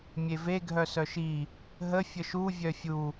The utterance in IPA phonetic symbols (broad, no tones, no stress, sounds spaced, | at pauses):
mʲ e v e ɡʱ œ s œ ʃ i | ɦ ə fʲ ə ʃ u vʲ œ fʲ u